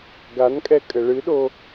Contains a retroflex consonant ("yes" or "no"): yes